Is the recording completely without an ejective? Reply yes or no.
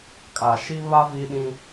no